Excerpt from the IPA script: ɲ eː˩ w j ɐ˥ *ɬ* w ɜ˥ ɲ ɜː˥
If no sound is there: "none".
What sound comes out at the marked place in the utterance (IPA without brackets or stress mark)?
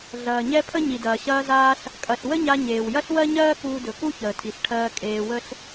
ɬ